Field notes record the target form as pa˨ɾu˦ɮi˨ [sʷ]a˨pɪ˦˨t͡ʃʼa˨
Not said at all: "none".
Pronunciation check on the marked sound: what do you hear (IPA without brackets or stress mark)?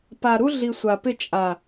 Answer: sʷ